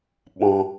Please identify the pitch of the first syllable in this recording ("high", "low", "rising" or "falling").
high